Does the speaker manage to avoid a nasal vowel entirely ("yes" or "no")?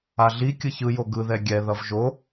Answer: yes